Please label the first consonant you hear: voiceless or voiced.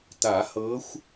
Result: voiceless